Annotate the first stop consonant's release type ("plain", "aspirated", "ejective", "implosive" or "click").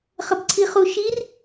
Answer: plain